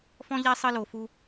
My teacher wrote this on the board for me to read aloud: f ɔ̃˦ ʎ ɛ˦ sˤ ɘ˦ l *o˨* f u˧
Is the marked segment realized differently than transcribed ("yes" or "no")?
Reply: no